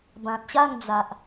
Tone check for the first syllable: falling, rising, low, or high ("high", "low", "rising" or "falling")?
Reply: low